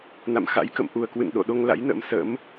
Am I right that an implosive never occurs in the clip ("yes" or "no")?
no